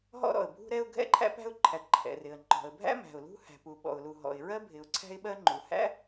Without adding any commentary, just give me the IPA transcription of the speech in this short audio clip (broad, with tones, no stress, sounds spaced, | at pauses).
ɦ ɔ̰˥ ɾ ɔ̰˩ ə̯ bʱ ṳ˥ ɾ ɛ˥ ʊ̯ ɡʱ ɛ̰˥ ǃʰ æ̰˥ p æ̤˥ ʊ̯ ǃʰ æ˩ t ǃʰ ɛ̰˩ r ɪ˩ ə̯ ŋ͡ǃ ɔ̤˩ ə̯ bʱ æ̰˥ m æ̤˩ ʊ̯ l ṳ˥ h æ̤˩ p u˩ ɓ ɔ̰˩ ʊ̯ l u˩ ɦ ɔ̰˩ ɪ̯ ɹ ɜ˥ bʱ ɪ˩ ʊ̯ ǀʰ æ̤˥ ɪ̯ ɓ ɜ˥ ŋ͡ǃ u˩ h æ̰˥